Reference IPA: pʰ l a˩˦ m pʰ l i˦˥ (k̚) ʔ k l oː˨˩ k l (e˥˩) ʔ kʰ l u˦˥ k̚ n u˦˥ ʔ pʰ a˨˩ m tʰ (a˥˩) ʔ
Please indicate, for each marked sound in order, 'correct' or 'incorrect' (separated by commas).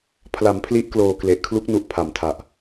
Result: incorrect, incorrect, incorrect